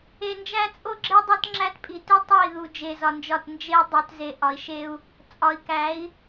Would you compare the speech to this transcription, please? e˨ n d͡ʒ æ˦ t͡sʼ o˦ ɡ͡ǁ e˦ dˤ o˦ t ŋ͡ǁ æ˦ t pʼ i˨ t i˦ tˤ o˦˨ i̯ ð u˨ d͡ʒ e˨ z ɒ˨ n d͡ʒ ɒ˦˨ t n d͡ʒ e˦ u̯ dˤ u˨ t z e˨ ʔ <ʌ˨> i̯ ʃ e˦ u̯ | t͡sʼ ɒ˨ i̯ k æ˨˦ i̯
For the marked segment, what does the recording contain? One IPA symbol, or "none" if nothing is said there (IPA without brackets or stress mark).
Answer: ɒ˨